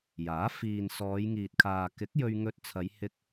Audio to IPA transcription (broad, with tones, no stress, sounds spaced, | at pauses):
j aː˨˥ f iː˨ n s ɔː˨˧ j ŋ iː˨ t̚ kʰ aː˨ k ɪ˨˥ k̚ j ɵ˧ ɥ ŋ ɵ˧ t̚ t͡sʰ ɐ˨˧ j h ɪ˧ k̚